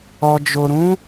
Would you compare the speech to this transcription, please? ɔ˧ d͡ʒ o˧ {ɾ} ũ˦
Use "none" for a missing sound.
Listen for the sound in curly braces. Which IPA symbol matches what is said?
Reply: ɾ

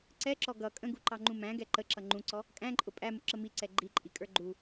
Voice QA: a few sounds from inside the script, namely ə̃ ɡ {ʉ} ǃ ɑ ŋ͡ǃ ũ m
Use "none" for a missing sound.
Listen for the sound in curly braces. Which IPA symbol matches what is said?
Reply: u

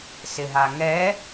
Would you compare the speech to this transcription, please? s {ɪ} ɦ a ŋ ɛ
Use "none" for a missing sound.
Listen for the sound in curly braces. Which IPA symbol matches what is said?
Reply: ɪ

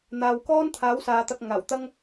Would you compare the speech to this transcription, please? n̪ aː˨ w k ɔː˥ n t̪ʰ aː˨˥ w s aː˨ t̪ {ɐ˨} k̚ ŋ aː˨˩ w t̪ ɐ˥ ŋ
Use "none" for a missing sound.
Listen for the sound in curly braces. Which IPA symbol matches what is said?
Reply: ɐ˧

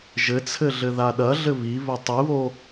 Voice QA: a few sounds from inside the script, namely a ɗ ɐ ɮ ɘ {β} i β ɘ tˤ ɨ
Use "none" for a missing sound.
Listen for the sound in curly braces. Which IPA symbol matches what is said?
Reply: β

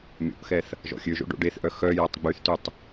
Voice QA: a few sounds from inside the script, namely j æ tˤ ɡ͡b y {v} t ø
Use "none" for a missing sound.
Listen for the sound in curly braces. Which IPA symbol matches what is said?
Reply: θ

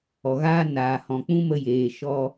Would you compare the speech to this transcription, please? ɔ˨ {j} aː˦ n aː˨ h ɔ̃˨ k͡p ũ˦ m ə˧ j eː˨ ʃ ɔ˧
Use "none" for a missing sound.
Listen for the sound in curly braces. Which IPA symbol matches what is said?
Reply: ɣ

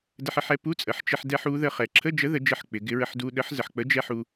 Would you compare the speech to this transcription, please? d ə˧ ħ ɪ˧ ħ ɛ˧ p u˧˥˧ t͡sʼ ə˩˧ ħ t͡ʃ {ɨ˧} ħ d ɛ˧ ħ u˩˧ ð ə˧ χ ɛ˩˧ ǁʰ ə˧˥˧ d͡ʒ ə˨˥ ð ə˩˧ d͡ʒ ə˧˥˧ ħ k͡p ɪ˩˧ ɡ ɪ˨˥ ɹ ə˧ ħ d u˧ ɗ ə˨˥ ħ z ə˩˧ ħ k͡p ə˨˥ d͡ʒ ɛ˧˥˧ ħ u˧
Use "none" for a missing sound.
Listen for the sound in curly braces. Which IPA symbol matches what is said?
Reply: ɪ˧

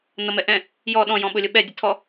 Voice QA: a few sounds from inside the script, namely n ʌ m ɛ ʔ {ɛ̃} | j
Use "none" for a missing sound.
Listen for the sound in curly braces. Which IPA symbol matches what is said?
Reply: ɛ̃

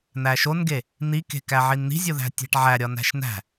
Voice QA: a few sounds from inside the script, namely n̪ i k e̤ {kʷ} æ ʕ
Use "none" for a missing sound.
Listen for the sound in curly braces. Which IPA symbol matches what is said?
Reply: k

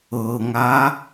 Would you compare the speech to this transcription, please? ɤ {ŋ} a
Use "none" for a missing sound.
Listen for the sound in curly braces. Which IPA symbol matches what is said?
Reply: ŋ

